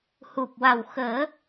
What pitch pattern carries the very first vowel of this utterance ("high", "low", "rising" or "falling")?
low